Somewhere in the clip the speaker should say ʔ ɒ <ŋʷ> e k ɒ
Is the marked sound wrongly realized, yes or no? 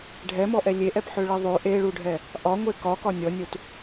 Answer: no